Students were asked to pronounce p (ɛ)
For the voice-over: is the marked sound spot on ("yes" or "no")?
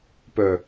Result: no